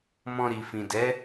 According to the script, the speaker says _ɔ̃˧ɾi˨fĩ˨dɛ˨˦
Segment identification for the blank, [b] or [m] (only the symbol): m